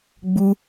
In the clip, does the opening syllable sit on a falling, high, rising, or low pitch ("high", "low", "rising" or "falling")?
high